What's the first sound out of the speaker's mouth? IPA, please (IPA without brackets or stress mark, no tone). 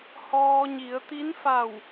h